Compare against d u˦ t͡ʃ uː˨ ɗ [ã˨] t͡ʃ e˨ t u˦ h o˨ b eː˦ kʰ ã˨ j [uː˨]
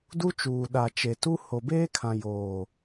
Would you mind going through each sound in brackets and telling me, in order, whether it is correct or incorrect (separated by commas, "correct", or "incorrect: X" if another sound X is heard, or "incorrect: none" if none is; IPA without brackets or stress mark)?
incorrect: a˨, incorrect: oː˨